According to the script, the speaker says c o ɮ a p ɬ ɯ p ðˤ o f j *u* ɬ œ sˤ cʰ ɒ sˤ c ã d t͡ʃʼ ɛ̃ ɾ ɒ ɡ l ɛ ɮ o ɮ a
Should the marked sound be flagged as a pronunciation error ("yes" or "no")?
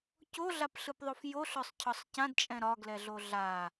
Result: yes